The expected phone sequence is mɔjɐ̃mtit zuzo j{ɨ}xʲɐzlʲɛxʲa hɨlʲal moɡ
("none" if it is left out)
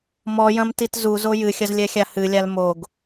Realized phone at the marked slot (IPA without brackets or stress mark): ɨ